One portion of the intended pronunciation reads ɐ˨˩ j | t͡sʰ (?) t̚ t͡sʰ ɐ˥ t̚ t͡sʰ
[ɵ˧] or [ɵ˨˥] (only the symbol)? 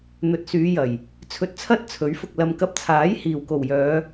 ɵ˧